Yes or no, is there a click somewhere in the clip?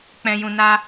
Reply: no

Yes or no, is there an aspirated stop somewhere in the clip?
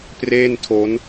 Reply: yes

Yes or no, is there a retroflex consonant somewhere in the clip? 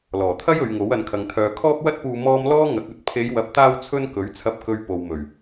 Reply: no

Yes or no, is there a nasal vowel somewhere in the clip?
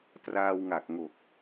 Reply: no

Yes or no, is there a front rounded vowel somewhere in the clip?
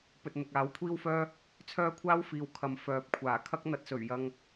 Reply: yes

